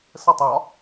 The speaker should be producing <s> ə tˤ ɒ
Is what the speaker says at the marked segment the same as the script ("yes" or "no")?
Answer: yes